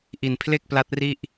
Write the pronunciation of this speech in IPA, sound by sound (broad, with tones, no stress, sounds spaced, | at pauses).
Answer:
ʔ i˨˩ n pʰ l e˥˩ k̚ p l a˦˥ t̚ r i˥˩ ʔ